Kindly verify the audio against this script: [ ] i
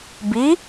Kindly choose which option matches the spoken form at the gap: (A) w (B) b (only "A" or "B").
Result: B